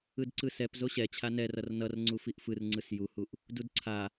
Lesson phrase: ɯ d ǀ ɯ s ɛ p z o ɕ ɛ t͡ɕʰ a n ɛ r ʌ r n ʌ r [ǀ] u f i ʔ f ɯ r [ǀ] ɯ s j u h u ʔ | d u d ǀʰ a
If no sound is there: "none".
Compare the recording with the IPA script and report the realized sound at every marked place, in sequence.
ŋ͡ǀ, ŋ͡ǀ

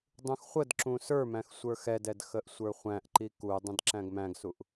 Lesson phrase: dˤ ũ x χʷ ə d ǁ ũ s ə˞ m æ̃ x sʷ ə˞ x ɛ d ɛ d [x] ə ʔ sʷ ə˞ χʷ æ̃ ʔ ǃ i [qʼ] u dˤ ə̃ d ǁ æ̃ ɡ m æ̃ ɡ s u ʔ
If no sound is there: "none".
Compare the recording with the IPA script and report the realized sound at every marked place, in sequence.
x, k

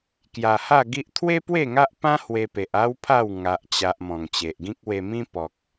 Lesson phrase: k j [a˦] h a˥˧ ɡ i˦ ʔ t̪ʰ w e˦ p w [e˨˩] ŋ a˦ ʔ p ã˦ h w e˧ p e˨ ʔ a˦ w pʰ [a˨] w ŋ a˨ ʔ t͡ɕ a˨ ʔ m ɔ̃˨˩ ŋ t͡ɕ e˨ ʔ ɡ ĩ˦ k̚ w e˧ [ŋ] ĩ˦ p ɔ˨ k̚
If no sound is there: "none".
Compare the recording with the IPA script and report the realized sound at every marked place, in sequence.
a˨˩, e˥˧, a˥˧, m

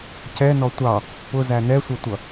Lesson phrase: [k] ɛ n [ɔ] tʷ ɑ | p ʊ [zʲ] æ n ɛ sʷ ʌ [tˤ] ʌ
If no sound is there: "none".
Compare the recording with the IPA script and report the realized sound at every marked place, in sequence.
c, ɔ, z, tʷ

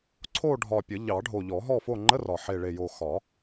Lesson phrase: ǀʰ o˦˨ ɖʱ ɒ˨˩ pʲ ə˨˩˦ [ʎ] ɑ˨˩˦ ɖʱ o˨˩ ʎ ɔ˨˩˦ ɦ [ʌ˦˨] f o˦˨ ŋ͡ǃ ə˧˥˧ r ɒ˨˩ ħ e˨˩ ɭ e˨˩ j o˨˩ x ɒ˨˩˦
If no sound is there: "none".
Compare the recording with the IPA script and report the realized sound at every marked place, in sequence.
ʎ, ɔ˦˨

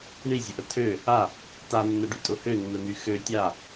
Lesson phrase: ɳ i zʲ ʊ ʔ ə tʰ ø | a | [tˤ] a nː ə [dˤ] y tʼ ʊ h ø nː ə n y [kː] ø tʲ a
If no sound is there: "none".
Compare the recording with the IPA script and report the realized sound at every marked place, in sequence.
t, ɖ, x

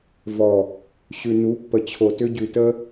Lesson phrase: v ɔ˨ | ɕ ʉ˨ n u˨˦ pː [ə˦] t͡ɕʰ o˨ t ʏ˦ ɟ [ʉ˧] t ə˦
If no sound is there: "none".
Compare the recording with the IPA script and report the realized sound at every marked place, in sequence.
ə˨, ʉ˨

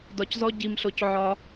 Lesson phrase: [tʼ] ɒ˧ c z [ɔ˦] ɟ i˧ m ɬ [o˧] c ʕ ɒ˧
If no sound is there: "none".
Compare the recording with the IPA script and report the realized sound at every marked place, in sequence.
d, ɔ˦, o˧

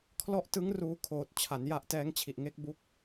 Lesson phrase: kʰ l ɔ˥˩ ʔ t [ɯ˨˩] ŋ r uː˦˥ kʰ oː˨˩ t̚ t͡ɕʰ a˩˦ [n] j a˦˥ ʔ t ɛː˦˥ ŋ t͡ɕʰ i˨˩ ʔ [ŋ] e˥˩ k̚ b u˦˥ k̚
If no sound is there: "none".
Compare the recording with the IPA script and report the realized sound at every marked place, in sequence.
ɯ˦˥, n, ŋ

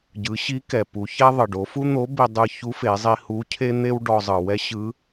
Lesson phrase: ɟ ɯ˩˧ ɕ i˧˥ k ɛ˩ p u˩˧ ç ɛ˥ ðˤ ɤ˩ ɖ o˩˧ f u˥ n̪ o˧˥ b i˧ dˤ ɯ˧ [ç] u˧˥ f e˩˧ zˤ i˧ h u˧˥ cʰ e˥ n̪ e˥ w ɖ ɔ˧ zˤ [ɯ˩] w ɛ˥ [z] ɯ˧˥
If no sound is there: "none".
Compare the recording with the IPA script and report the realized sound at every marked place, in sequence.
ç, ɯ˩, ɕ

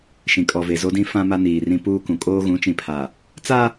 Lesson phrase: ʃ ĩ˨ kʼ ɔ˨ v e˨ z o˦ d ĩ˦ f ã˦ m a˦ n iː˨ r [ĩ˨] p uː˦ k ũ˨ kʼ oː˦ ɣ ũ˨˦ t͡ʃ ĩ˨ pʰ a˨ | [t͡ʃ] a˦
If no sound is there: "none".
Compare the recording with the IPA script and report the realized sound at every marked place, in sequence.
ĩ˦, t͡s

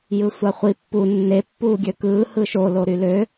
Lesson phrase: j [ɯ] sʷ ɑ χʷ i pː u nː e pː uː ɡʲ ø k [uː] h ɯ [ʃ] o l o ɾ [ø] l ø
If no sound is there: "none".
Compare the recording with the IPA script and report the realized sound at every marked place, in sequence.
ɯ, ɯː, ʃ, y

